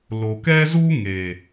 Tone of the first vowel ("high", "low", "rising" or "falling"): low